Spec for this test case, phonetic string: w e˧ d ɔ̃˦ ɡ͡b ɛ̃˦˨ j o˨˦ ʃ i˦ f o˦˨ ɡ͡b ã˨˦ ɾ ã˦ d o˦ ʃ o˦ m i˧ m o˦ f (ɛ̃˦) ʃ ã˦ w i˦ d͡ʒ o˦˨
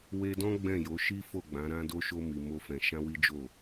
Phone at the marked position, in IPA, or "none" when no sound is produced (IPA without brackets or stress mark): ɛ̃˧